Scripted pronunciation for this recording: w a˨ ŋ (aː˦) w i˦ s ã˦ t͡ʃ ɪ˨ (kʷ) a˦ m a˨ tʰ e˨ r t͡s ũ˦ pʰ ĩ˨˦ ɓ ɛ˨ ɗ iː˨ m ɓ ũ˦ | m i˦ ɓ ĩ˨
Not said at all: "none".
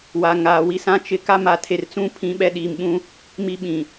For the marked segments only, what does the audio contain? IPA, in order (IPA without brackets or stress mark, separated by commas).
aː˨, k